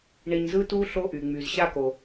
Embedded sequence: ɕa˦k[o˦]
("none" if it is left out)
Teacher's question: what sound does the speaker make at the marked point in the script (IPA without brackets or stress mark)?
o˩